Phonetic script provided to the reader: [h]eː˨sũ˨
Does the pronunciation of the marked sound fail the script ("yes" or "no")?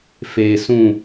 yes